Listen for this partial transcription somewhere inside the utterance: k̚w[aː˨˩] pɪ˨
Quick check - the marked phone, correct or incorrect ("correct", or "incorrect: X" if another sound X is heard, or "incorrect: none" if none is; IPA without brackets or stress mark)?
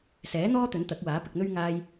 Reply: incorrect: aː˨˥